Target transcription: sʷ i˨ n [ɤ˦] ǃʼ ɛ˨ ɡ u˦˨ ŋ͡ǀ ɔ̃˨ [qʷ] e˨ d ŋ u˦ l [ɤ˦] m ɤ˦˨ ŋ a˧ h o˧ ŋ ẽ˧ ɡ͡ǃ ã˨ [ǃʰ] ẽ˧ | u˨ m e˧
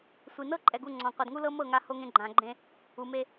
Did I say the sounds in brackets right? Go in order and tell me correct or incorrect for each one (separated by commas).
correct, correct, correct, incorrect